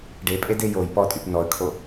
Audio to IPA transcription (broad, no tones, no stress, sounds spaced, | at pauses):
ɖ e pʼ e d e j o j p ɔ tʼ y p n ɔ ə̯ kʰ o